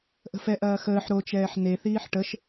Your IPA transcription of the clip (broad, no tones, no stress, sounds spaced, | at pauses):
ʔ ə̤ f ɛ ʔ ɐː x əː ħ ɾ o t͡ʃ ɛː ħ n e θ iː ħ ʈ ə ʃ